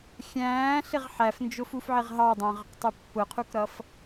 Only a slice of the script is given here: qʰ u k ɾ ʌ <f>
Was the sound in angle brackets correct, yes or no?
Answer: yes